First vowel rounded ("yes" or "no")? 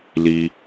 no